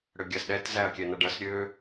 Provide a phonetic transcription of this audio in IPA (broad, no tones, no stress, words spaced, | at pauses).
ɽøɡʲasɗɛt zæɐ̯kʲɛnʌɖʌs ɾʲø